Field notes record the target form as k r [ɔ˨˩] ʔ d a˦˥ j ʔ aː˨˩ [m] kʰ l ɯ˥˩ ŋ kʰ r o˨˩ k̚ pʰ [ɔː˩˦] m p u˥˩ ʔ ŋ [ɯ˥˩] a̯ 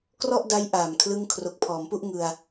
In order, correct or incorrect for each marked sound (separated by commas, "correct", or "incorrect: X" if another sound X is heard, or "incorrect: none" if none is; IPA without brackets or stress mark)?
incorrect: ɔ˥˩, correct, correct, incorrect: ɯ˧